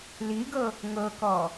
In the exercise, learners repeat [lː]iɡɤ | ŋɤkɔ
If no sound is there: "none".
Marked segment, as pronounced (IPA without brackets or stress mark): l